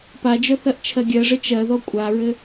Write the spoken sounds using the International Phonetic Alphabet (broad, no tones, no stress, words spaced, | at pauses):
pad͡ʒœ θɜʔt͡ʃʰɜɡʲɜʐɘ t͡ʃɜðɔ kʷʼaɹɘ